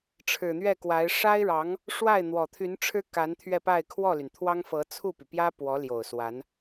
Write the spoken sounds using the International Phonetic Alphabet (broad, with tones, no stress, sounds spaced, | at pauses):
ʈ͡ʂʰ ɻ̩˨˩ n̪ ɥ ɛ˥˩ k w a˧˥ ɪ̯ ʂ a˥ ɪ̯ ɻ ɑ˧˥ ŋ | ʂ w a˥˩ ɪ̯ n̪ w ɔ˨˩ t̪ʰ y˧˥ n ʈ͡ʂʰ ɻ̩˥ k a˧˥ n t̪ʰ ɥ ɛ˥˧ p a˥˧ ɪ̯ kʰ w ɔ˥˩ l y˩ n t̪ʰ w ɑ˥ ŋ f ɤ˧˥ t͡sʰ u˥˩ p y˩ p j ä˥ p w ɔ˧˥ l j o˨˩ ʊ̯ s w a˧˥ n